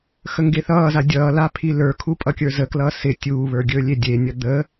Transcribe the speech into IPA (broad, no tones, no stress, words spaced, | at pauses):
xəŋɡeθʌːza dʲʌːla pʰilə˞kʰu pʼʌkʲə˞zəklʌː sɪ tʲuːβə˞ ɡʲɵːlʲedʲenʲʌ d̪ə